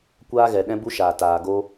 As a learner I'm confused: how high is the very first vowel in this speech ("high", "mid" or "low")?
low